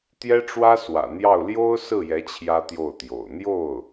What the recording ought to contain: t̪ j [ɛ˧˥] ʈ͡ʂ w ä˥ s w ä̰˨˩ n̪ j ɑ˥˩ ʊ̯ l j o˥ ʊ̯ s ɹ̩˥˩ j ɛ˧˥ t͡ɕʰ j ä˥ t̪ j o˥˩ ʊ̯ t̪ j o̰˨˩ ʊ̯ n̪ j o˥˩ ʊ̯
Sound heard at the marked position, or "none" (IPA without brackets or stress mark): ɛ˥